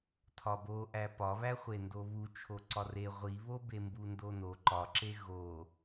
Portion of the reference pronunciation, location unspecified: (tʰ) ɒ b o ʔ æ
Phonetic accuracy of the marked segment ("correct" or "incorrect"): correct